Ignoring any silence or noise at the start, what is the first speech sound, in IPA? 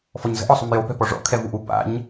f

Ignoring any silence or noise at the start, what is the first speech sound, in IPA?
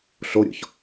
ɬ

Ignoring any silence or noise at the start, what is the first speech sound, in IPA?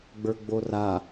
ɡ͡b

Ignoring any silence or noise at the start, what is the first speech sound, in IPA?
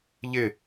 ʎ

